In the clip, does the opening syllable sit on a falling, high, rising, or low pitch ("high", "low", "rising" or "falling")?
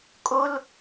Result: high